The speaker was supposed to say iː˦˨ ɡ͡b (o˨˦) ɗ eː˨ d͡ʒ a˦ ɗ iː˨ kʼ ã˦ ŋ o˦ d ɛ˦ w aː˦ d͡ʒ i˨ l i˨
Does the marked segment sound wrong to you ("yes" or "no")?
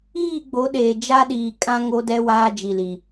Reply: no